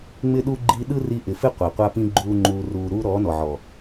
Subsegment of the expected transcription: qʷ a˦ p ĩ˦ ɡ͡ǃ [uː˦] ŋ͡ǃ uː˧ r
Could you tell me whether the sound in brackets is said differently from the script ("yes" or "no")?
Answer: no